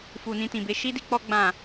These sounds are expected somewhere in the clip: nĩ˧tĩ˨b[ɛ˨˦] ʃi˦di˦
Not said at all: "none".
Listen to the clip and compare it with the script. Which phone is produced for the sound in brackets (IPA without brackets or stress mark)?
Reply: e˨˦